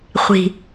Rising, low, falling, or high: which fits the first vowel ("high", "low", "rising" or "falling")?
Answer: low